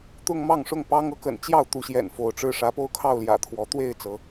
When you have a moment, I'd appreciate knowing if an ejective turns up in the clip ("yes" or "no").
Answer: no